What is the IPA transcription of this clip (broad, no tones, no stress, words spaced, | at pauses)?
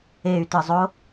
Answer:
ey̯tɯzˤo